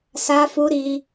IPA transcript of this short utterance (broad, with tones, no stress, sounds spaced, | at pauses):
s a˦ f u˦ ɾ i˧